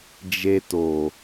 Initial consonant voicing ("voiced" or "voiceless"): voiced